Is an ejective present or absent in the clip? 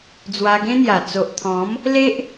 absent